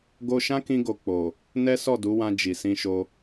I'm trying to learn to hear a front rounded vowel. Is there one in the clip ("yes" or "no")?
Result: no